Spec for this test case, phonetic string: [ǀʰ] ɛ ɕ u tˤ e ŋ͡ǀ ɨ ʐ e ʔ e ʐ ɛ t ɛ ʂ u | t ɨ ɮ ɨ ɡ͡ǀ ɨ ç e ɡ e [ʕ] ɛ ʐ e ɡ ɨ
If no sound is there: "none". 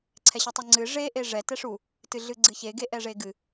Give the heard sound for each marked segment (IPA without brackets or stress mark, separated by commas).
ǀʰ, ʔ